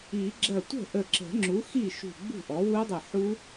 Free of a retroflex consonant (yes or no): yes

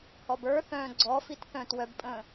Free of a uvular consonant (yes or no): yes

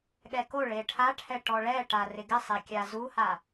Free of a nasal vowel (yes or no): yes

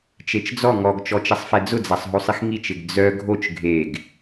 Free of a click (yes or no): yes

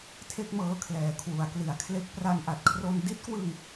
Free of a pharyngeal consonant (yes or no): yes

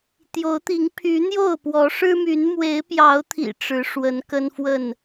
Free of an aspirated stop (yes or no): no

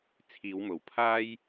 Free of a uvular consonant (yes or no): yes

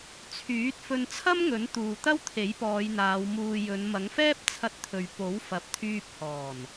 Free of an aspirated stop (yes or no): no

